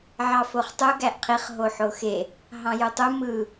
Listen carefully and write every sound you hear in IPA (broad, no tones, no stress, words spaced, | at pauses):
ʕɑfoχtˤu ɡæʔqʰiχ ɦoħoxe | ɦɑ̃jutˤu mɯ